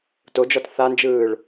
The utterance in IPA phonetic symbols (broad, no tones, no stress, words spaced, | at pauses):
tod͡ʒɔt θand͡ʒɯːɭ